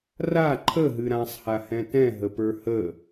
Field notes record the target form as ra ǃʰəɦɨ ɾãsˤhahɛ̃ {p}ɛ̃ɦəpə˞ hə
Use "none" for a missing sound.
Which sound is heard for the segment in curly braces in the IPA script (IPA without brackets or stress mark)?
t